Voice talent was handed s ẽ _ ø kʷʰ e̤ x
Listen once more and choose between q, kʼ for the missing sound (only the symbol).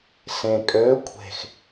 kʼ